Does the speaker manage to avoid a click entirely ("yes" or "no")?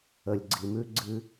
no